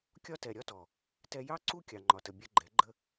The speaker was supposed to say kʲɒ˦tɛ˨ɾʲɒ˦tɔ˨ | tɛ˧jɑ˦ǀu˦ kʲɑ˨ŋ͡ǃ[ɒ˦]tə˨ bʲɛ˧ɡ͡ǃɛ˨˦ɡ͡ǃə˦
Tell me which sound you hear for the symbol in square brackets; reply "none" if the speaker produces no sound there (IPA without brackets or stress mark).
ɒ˨